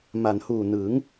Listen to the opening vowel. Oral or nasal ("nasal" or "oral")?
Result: oral